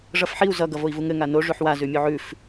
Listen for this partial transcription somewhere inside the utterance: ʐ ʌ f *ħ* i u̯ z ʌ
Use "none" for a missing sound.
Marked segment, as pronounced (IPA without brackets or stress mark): ħ